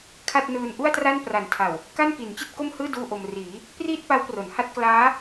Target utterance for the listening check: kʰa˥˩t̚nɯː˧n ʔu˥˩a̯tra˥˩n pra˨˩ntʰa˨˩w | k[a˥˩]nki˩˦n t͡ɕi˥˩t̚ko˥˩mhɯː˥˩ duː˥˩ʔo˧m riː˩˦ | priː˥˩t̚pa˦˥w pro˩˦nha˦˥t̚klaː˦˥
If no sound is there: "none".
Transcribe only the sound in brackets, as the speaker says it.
a˥˩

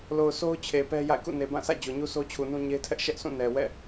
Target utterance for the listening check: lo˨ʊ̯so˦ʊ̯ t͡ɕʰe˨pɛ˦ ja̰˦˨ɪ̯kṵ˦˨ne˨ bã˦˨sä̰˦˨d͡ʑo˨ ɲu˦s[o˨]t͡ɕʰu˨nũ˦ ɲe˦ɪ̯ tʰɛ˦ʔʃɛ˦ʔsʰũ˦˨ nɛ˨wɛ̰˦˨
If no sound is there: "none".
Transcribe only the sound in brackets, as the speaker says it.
o˦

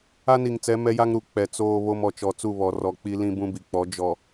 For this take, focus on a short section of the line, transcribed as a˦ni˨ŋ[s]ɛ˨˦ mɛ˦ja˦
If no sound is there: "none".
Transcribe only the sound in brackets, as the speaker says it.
t͡s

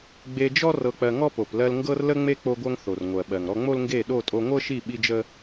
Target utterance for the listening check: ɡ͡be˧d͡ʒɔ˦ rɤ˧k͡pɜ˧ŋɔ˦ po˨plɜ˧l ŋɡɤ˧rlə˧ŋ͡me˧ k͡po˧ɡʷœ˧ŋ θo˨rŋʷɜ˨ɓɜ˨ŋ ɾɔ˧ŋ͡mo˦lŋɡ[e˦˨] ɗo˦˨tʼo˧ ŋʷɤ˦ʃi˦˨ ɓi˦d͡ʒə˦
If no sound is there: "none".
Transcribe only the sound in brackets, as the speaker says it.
e˦˨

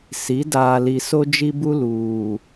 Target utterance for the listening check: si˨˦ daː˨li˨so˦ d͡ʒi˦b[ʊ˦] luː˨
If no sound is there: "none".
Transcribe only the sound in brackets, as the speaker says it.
u˦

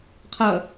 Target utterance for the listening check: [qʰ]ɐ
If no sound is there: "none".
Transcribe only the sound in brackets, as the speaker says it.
qʰ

